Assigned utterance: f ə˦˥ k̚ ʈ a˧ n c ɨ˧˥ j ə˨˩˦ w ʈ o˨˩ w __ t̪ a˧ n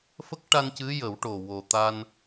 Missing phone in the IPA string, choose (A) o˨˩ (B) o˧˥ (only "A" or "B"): A